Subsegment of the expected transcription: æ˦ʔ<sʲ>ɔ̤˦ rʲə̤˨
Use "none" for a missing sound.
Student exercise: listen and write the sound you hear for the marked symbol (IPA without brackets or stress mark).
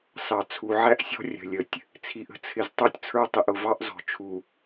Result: sʲ